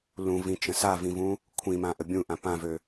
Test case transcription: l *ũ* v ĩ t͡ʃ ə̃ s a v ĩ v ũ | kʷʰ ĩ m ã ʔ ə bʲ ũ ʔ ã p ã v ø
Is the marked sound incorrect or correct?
correct